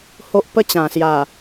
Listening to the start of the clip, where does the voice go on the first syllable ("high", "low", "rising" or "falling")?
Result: high